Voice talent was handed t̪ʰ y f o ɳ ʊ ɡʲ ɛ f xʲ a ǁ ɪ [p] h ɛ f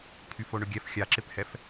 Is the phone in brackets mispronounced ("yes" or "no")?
no